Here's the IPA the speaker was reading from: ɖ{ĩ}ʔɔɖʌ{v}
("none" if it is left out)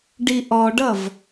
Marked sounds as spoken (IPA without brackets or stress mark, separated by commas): i, v